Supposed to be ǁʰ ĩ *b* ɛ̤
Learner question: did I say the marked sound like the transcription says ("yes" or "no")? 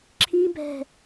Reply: yes